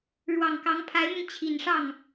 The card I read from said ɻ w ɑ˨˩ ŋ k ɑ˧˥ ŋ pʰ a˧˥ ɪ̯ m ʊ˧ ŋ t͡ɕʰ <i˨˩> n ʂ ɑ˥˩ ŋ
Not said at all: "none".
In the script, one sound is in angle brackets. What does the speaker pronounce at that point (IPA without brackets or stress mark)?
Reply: i˨˩